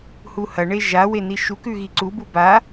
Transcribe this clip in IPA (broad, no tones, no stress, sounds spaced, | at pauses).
h u h ɐ ɳ e ʒ a w e n i ʃ u k ʉ ɣ i ǀ u b u b a